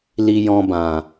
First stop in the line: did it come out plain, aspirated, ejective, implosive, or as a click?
plain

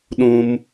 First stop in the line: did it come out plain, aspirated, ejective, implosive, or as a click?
implosive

